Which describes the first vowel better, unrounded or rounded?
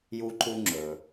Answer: rounded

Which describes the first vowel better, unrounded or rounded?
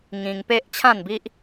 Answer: unrounded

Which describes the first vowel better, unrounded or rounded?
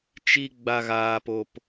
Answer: unrounded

